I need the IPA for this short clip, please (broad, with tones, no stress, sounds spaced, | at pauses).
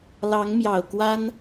l ɑ˧˥ ŋ m j ɑ˨˩ ʊ̯ k w a˥ n